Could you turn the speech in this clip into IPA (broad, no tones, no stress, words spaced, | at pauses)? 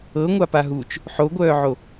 ɤŋʷapaɦuːt͡ʃ | ħoɡʷœːʕo